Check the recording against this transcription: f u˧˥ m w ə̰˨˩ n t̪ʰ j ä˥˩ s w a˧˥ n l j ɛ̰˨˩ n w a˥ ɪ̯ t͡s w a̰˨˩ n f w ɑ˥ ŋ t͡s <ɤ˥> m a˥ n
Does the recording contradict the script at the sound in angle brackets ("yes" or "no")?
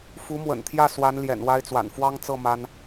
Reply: yes